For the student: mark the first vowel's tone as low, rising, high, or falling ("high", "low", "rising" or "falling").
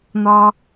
high